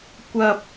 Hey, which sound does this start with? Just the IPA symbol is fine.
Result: kʷ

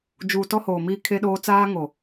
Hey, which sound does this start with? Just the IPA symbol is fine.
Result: d͡ʒ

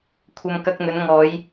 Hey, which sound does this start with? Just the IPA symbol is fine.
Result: kʷʰ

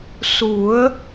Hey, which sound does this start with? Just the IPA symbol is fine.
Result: s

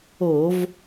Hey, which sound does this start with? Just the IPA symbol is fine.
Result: o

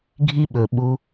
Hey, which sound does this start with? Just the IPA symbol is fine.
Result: ɡʱ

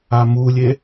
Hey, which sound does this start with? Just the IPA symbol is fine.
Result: a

